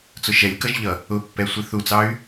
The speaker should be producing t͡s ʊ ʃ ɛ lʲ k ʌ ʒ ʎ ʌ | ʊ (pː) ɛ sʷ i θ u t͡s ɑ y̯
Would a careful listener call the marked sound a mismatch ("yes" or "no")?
no